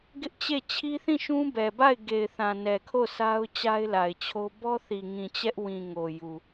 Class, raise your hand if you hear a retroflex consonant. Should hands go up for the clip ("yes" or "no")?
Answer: no